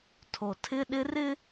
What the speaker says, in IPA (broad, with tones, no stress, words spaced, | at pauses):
tʰo˨tʰɪ˦ɗɪ˦ rɪ˦